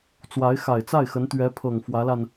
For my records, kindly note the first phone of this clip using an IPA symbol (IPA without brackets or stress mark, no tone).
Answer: t͡s